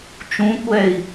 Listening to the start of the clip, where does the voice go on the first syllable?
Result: rising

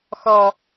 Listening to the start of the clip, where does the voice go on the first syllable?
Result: high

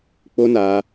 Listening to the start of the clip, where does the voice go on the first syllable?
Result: high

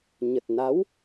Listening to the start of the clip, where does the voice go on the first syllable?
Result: low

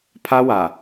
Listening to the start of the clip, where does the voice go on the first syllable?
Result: high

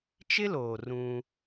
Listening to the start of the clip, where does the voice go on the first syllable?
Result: high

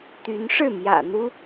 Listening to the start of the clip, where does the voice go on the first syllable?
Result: rising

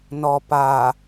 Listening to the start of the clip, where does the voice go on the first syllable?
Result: low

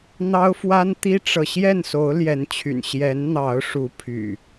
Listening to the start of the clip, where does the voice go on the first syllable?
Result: high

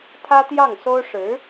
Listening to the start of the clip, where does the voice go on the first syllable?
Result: high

